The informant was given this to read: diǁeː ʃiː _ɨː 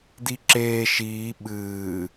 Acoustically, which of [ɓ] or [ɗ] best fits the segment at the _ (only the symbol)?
ɓ